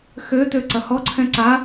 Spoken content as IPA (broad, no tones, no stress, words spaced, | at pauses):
xø tøǀɐhɔǀʰɛ̃ ǀa